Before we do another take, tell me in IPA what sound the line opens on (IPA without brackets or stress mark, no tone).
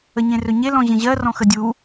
ə